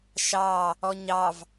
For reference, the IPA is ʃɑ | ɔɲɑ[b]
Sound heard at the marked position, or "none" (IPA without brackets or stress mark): v